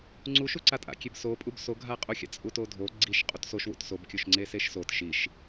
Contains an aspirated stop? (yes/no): no